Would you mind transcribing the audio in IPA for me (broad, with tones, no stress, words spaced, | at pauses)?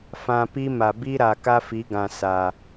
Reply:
fã˨ pi˦ ma˨bi˦ɾa˨ ka˦fi˨˦ɡã˨ sa˨